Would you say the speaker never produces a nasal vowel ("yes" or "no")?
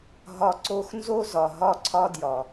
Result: yes